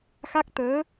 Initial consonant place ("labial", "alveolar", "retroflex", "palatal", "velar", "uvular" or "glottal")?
velar